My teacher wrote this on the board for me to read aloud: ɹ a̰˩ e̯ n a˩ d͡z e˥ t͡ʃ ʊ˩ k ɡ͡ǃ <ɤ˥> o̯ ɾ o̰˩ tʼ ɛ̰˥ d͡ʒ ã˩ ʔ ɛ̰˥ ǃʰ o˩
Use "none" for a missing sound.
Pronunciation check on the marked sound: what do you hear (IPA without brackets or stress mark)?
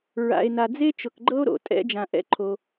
ɤ˥